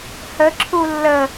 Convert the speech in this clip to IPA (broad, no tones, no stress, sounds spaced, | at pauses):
h ə ǁʰ u lː ə